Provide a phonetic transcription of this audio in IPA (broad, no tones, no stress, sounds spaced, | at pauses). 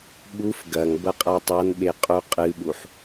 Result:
ɓ u f ɡ ɐ ŋ b ɐ qʼ a tˤ a n ɓ e qʼ u qʼ ɨ ɓ u ħ